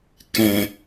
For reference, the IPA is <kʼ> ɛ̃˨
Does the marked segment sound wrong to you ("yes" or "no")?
yes